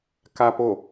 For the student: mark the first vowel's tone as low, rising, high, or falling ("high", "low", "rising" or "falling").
low